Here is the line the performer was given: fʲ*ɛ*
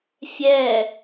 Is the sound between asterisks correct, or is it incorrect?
correct